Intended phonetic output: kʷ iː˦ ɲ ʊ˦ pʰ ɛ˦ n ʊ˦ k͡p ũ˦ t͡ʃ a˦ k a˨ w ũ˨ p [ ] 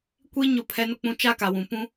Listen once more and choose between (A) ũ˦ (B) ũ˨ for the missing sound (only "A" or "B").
A